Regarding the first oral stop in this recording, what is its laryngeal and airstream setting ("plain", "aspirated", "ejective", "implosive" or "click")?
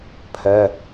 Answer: aspirated